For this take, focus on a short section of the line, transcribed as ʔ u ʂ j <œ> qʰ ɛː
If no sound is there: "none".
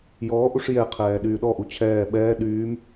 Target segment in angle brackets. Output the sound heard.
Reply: ɛ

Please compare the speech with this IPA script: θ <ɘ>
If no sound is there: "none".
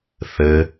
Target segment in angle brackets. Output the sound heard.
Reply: ɘ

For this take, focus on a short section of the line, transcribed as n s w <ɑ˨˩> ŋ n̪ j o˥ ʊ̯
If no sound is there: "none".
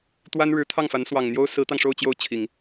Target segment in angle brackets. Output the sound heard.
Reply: ɑ˨˩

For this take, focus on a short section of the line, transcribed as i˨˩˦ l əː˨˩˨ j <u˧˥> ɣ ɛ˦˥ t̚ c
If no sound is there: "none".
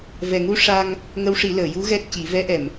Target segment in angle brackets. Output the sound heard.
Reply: u˧˥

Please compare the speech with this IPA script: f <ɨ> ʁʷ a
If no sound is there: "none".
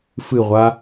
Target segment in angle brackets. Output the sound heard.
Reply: ɨ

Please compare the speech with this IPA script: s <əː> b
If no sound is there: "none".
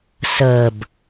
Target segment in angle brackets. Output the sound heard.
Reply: əː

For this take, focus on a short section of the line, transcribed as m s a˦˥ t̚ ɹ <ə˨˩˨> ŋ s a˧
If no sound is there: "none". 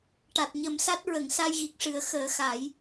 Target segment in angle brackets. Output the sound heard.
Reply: ə˨˩˨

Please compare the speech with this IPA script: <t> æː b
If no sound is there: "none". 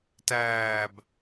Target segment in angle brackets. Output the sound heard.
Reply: t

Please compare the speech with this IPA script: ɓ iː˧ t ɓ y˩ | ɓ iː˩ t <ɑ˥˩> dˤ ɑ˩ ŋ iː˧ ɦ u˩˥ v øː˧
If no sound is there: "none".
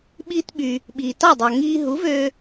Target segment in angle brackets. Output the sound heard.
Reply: ɑ˥˩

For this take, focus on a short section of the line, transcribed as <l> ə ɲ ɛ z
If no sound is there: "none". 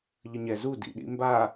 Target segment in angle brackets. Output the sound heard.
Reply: ʎ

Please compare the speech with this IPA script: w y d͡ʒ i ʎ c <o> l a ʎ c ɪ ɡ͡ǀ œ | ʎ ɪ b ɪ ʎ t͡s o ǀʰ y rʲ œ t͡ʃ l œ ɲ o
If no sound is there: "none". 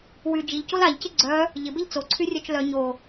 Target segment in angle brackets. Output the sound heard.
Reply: o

